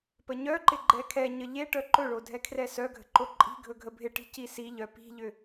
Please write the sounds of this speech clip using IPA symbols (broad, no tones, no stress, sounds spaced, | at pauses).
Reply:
p ə ɲ œ ǃ ɪ ɡ͡ǃ ɛ kʰ ɛ ɲ ə ʎ e ʈ œ ǃ ɵ ɭ o dʱ ɛ kʰ r ɛ s œ ɡʱ ə̤ ǃ o ǃʼ i̤ ɡʱ ɵ ɡʱ ə bʱ ɪ ʈ i̤ c i s i ʎ œ p i̤ ʎ ʏ